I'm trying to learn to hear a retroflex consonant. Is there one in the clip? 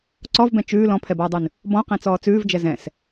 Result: no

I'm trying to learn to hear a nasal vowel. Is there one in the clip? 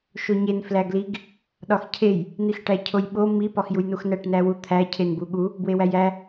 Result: no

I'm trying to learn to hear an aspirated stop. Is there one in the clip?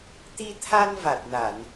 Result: yes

